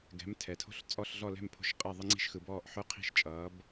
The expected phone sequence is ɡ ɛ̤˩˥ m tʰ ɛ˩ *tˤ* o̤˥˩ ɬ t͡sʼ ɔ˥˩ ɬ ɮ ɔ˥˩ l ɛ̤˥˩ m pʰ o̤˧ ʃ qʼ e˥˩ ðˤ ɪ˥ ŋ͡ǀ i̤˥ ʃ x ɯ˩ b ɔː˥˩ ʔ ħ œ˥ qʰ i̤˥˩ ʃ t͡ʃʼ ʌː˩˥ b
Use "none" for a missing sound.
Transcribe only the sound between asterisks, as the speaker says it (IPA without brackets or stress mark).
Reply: tʰ